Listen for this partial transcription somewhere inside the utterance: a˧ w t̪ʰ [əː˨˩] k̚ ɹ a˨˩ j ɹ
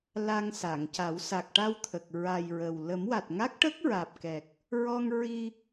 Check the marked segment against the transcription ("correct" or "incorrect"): incorrect